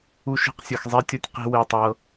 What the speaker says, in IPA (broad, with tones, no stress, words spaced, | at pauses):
u˦ʃi̤˦qsʲɯ˨x zˤe˦tʲo˦tʲ qi̤˦we˦˨tˤɤ˦